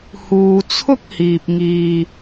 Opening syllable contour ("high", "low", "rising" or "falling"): low